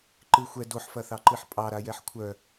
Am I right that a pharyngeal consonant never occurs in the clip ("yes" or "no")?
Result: no